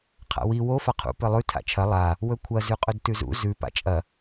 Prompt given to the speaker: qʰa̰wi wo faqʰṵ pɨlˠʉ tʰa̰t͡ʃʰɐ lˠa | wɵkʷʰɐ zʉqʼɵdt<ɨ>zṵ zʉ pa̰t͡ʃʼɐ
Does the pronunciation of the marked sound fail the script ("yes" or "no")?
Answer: yes